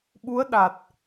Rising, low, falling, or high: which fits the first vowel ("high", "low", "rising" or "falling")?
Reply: rising